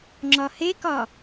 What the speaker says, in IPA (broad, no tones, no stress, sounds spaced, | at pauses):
ŋ͡ǁ ɒ h e k ɒ